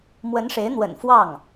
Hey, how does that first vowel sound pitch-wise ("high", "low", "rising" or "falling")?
rising